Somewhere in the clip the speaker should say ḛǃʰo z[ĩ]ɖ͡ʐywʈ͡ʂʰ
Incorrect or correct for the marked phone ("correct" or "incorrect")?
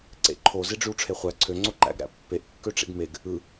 incorrect